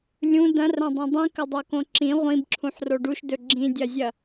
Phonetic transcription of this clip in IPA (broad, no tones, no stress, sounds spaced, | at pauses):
lʲ ũ d ɐ̃ r ɐ̃ dˤ ĩ dˤ ĩ k ɵ dˤ o k õ ǁ ĩ ʁʷ ĩ b ǁʰ ũ ħ r o ɖ u ʃ d ɵ ɡ͡ǁ ĩ dʲ ɐ zʲ ɐ